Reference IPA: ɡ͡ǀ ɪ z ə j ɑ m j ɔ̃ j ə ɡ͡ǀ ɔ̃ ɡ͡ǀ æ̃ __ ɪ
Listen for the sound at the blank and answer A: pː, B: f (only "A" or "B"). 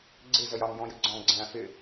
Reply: B